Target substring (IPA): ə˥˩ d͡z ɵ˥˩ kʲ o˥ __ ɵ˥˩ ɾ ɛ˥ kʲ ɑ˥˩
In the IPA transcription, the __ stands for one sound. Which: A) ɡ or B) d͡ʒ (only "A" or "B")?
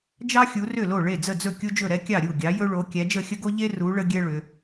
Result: B